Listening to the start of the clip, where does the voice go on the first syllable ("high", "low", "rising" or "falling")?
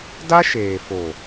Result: high